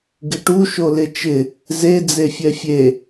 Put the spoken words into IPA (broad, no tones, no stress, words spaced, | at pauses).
ɡɪʈu ʃolɪt͡ʃɪ | ze d͡zefʲɛfʲe